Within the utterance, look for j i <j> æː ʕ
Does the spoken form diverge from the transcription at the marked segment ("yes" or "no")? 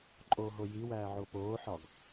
yes